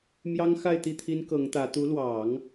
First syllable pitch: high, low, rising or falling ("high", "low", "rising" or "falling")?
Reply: high